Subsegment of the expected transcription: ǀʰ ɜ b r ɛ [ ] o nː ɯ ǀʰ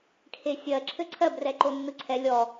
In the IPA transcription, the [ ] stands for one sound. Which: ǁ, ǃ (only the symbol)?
ǃ